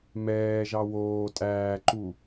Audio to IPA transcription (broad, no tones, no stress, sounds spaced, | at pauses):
m ɛː ʒ ɑ w oː tʼ æː ǃ u